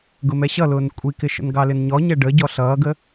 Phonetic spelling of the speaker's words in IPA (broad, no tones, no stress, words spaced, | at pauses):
ɡʊmɛɕʌlʊːn kʷʼikɪʃə̰n ɡɑlɪnɲɔ ɲɛɖə ɟɔɬʌːɡə